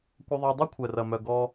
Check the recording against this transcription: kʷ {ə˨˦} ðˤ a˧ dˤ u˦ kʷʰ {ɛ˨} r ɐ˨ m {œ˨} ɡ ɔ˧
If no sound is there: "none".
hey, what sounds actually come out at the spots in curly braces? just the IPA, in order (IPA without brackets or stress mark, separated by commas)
ə˧, ɛ˨, œ˨